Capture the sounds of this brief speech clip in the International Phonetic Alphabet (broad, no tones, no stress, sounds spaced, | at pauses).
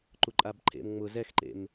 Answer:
ǃ u ǃʼ a b ǃʰ ḛ m ŋ͡m ʊ z ɛ x ǃ ḛ m